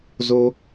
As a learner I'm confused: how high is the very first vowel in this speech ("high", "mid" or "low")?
mid